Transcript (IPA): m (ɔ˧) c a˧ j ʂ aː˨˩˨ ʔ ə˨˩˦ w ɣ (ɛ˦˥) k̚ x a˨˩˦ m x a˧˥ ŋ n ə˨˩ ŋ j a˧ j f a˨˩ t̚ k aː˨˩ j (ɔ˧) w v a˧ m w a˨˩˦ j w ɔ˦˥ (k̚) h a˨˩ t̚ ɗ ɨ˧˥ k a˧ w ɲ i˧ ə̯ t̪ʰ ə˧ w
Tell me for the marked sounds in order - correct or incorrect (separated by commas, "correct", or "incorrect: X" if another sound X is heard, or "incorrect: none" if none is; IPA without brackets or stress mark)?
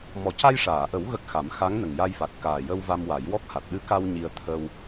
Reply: incorrect: ɔ˨˩, incorrect: ə˦˥, incorrect: ə˧, correct